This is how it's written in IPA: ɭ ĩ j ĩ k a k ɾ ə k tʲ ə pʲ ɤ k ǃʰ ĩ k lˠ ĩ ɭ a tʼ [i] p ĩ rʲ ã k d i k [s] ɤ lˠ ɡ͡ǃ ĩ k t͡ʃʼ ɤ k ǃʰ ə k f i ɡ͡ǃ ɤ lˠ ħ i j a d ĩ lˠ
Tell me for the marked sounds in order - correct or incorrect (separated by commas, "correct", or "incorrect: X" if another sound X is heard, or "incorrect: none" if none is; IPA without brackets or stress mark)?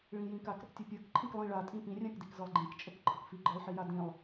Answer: incorrect: ĩ, incorrect: z